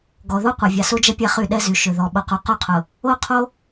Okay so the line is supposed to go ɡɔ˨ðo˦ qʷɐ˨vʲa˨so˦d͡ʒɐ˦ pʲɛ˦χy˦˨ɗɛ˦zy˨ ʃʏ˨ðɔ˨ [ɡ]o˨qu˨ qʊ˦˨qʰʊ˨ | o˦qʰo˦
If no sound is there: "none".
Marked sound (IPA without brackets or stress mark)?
ɓ